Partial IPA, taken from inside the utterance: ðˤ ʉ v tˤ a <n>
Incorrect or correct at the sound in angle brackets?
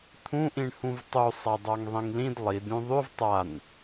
correct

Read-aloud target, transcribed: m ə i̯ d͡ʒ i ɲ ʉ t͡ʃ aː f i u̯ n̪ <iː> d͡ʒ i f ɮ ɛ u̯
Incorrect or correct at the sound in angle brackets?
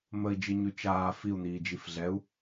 correct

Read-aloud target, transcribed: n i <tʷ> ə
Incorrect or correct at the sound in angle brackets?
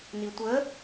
correct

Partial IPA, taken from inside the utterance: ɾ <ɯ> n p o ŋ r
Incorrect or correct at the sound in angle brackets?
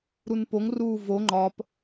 incorrect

